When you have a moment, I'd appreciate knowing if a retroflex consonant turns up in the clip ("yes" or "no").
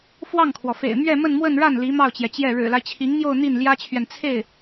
yes